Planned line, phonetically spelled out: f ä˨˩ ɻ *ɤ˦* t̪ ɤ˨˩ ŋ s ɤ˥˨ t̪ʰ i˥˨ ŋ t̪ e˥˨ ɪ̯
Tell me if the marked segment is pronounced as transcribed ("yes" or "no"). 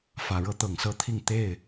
yes